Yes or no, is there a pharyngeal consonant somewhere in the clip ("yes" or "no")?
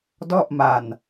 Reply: no